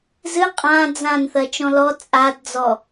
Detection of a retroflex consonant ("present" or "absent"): absent